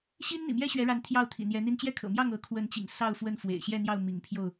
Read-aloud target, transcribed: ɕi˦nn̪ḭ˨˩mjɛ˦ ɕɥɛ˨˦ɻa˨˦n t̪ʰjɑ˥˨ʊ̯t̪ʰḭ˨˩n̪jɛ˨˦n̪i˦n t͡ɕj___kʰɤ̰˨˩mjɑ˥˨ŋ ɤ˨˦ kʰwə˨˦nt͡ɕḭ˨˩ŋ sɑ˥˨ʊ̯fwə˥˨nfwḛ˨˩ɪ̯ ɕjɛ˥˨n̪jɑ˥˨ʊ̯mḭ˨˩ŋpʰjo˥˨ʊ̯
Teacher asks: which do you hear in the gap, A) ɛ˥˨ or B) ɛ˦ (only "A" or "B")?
A